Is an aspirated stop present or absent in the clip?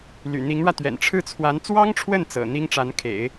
present